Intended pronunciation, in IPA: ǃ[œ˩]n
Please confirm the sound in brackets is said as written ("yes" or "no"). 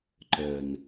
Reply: yes